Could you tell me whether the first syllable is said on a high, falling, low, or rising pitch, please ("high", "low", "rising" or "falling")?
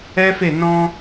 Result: high